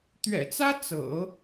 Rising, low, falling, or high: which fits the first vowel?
low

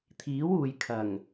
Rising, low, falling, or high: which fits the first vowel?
rising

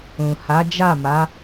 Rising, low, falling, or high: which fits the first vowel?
low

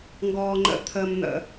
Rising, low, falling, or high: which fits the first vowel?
low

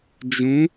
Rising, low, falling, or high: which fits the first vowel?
rising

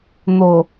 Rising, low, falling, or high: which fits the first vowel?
low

